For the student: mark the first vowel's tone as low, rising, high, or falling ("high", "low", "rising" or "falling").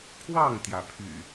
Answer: falling